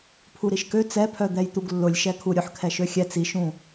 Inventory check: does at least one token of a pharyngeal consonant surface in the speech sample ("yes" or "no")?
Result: yes